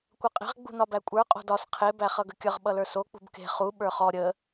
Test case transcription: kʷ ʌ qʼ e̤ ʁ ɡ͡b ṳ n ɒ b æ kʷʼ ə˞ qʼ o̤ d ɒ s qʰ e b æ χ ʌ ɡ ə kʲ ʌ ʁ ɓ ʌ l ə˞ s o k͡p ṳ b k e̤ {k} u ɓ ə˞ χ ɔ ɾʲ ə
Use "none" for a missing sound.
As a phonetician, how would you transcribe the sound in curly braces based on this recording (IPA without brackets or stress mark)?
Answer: χ